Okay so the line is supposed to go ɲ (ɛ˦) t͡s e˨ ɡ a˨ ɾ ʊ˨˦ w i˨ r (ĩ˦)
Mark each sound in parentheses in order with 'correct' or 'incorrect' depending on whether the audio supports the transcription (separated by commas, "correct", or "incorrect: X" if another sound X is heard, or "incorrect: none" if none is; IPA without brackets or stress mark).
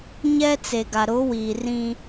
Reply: correct, correct